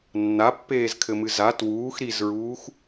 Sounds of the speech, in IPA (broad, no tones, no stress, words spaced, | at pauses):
nːapːeːzkʰɘmɨ za twuːx ɾizɹuːx